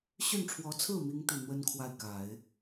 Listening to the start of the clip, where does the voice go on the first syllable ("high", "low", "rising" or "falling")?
falling